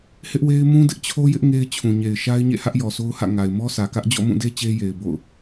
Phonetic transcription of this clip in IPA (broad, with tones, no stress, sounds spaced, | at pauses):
h ɪ˦ ʔ w e˦ ɪ̯ m ũ˦ d ɪ˦ ʔ t͡ɕʰ o˦ j ɪ˦ ʔ ŋ e˦ ɪ̯ t͡ɕʰ ũ˨ ɲ e˨ ɪ̯ ʃ a˦ ɪ̯ ɲ ḛ˦˨ h ä˦ ʔ j ɔ˨ sʰ o˦ ʊ̯ h ä̰˦˨ ŋ a˨ ɪ̯ m ɔ˦ s ä˨ k ä˦ ʔ d͡ʑ ɔ̰˦˨ m ũ˦˨ d e˦ t͡ɕ e˦ j e˨ ɪ̯ b o̰˦˨ ʊ̯